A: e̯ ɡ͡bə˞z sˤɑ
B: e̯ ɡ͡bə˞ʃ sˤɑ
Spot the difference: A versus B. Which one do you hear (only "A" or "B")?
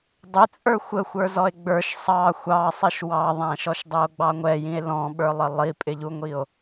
B